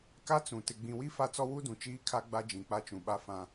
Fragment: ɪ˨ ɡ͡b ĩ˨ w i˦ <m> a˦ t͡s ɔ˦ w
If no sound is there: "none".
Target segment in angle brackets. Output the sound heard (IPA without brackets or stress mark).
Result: f